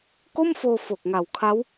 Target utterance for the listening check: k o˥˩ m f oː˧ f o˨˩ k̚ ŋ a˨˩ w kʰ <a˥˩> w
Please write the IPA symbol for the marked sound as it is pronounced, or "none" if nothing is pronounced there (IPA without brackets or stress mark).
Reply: a˦˥